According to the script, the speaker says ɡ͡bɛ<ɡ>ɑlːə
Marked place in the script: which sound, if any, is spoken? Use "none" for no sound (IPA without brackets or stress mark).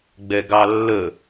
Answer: ɡ